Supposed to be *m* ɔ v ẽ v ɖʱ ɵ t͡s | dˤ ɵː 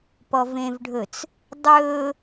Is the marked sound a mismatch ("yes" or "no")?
yes